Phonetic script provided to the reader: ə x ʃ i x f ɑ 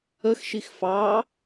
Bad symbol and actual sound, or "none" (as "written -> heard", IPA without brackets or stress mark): none